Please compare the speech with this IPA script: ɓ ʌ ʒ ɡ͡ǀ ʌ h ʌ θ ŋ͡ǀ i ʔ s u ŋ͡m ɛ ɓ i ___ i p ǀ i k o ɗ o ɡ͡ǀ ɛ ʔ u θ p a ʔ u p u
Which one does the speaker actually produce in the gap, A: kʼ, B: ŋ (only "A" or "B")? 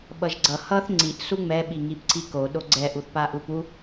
B